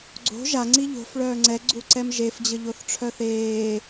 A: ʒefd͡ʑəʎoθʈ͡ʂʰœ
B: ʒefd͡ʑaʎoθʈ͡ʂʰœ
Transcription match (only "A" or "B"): A